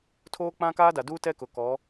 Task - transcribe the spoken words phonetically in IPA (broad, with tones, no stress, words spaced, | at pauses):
tʰoː˦k͡pã˦kaː˦da˨ duː˦tɛ˦kʊ˨ kɔ˨˦